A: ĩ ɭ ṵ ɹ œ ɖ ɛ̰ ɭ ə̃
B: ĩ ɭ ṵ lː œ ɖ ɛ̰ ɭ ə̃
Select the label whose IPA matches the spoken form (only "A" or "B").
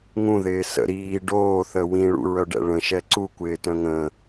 A